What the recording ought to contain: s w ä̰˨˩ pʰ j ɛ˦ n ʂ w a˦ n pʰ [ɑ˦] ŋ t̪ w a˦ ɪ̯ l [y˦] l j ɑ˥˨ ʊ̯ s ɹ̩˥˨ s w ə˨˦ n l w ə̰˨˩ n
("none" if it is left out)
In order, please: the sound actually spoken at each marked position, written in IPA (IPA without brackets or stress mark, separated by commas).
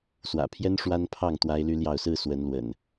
ɑ˥˨, y˦